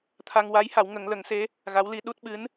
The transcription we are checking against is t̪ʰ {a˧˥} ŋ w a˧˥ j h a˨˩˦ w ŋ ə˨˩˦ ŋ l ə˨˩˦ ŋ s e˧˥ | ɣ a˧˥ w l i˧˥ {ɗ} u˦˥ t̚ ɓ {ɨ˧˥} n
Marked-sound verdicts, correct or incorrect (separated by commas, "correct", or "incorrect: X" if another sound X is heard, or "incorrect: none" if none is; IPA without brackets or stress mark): incorrect: a˧, correct, correct